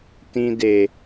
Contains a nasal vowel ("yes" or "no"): yes